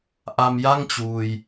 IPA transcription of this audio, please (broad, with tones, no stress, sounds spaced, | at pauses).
ʔ a˧ m j a˥˩ ŋ t͡ɕ uː˧ j